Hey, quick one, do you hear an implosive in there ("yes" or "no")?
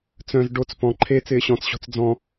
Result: no